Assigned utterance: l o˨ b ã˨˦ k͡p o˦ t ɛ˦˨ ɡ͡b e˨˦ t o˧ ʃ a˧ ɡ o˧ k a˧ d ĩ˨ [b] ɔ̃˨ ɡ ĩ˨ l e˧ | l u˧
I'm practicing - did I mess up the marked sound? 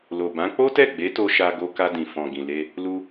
yes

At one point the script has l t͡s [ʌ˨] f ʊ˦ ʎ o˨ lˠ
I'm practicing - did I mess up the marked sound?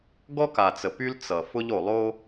no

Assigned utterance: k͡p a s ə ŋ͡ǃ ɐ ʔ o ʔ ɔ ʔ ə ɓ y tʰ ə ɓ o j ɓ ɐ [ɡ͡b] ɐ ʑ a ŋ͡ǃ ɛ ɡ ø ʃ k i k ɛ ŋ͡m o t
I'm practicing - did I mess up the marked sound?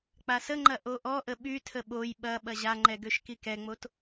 yes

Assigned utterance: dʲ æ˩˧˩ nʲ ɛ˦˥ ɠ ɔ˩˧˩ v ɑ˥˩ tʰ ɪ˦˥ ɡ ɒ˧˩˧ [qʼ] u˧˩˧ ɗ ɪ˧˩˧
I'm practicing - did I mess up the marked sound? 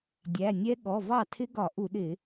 yes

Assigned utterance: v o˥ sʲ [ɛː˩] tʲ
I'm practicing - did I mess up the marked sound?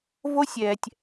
no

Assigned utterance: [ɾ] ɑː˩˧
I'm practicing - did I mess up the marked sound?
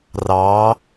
yes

